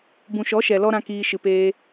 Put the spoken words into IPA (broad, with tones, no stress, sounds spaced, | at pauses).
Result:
b ũ˨ ʃ ɔ˨˦ ʃ ɛ˨ l ɔ˧ ɾ ã˦ k iː˧ ʃ ɨ˨ p eː˧